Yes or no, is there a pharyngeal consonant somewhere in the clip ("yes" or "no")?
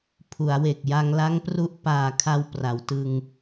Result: no